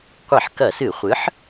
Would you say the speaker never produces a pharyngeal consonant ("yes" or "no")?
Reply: no